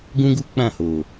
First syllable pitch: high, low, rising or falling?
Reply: high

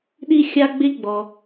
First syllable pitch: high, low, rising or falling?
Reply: high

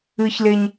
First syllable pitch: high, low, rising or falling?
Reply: high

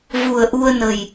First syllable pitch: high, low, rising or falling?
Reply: low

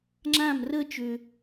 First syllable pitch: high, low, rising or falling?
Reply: falling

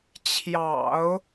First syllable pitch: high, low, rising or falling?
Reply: low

